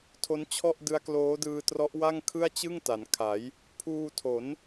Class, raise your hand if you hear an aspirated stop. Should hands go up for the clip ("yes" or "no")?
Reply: yes